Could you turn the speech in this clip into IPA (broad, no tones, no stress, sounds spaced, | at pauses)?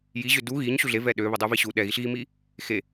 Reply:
j i ʑ ø d u ɣ i ɲ ɕ u ɮ e v ɛ ɗ ø β e dˤ u v i ɕ u ɗ ɛ ɣ i ɬ ɣ i m i | x e